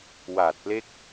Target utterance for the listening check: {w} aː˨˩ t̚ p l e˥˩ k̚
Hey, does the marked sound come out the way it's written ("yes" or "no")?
yes